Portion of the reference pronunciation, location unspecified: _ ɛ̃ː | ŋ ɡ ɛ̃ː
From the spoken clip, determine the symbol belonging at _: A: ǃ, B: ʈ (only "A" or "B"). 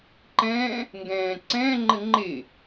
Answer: A